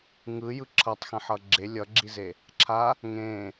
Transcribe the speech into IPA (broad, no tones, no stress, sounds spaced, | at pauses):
ŋ ɯ j ɯ ǁʰ ʌ tˤ x ɛ̃ ħ ʌ ɡ͡ǁ e lʲ ʌ ɡ͡ǁ i z e | ǁʰ a | ŋ ẽ